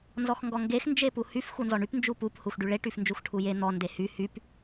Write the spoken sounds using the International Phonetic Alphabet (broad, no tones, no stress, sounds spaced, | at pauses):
n z ɔ x ŋ ɡ ɔ ŋ ɡ e x n d͡ʒ e p u h y f x u n z ɔ ɳ y p n d͡ʒ u p u p h u x ɖ y ɭ e ʈ y f n d͡ʒ u x ʈʰ u j e n̪ ɔ n d e h y h y p